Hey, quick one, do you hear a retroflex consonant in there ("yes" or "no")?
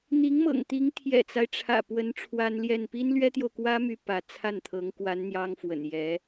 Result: yes